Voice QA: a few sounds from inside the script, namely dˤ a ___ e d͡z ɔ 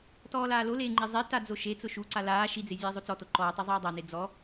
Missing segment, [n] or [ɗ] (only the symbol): n